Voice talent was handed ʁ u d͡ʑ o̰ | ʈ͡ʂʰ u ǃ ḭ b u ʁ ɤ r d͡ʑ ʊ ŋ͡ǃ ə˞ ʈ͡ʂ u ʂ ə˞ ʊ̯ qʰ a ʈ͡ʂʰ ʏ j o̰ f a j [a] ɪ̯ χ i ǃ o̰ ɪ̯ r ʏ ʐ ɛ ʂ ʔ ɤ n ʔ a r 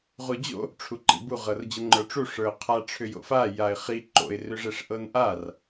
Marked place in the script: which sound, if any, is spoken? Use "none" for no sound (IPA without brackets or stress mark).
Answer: a